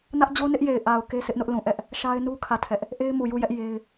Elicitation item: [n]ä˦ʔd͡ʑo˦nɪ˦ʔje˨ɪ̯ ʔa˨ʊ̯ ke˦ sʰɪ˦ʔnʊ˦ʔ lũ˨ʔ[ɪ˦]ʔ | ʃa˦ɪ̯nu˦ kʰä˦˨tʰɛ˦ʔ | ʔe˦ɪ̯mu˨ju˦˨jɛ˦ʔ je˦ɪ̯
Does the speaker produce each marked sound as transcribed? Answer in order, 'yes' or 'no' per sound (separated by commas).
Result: yes, no